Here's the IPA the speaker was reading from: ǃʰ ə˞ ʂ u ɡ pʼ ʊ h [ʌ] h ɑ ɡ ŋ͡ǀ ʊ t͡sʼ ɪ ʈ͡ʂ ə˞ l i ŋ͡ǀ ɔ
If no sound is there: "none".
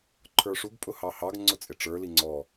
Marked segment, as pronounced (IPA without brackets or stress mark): ɑ